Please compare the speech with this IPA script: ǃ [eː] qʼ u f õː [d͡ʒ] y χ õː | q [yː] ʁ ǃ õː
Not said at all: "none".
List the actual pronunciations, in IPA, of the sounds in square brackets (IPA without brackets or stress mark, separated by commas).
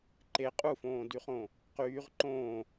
e, d, yː